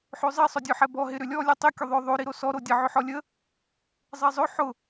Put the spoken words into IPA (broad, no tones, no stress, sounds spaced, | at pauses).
ħ ø zˤ i sˤ œ dʲ œ ħ ɛ b ɔ ɦ ɪ ɾ ʏ lʲ ɔ lʲ ɛ tˤ i kʲ ʊ ðˤ œ ðˤ o ɾ i ɾ o s ɔ ɾ o dʲ ə ʕ ʏ ħ ɔ lʲ ə | zˤ e zˤ ø ħ ʊ